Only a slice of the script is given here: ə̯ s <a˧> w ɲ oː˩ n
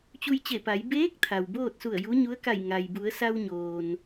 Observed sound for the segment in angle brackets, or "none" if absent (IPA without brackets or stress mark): a˧